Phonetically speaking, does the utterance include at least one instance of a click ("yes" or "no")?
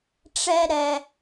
no